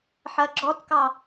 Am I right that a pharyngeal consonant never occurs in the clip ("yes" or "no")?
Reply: no